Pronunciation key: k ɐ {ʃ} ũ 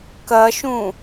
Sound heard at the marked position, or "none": ʃ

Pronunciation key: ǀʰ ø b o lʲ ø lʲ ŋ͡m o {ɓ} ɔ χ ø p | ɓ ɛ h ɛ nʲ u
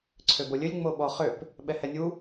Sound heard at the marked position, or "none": ɓ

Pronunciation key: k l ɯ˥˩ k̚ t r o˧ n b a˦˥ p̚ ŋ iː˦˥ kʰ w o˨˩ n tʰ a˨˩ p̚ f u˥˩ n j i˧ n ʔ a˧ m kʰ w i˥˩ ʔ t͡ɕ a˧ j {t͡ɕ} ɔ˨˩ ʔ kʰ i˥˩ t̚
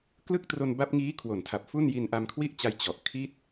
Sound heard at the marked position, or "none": t͡ɕ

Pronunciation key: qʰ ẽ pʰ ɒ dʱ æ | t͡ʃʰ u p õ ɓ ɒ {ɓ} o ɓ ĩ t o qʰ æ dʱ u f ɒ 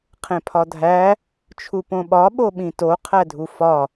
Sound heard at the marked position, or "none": ɓ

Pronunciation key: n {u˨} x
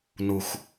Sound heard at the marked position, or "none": u˨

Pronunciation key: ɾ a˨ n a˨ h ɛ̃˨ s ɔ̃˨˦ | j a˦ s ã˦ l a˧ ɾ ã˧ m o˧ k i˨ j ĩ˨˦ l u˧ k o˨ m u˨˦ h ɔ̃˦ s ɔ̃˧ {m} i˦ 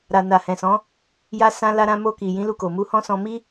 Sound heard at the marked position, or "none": m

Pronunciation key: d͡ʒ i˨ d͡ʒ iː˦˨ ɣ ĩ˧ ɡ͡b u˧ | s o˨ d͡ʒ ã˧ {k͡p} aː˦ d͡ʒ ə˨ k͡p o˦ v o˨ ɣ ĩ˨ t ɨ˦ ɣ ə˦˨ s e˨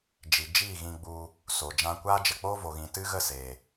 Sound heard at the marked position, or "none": kʷ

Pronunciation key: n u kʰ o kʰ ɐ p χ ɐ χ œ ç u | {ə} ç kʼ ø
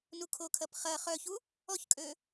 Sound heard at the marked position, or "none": ɔ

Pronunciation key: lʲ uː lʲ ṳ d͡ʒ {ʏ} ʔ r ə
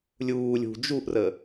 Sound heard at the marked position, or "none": u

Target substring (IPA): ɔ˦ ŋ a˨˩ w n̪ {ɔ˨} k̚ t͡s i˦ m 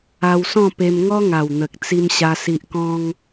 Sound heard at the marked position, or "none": ə˨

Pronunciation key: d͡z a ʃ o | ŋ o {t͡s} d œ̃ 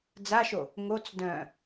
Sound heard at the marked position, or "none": t͡s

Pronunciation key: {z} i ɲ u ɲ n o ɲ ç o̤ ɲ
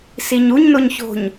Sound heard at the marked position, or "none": s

